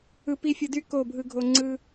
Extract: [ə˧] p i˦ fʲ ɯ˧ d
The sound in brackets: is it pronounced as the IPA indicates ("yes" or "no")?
no